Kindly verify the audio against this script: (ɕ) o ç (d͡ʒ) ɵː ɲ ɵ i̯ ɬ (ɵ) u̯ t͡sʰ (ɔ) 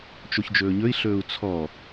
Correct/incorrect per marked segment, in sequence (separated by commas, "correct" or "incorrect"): incorrect, correct, incorrect, correct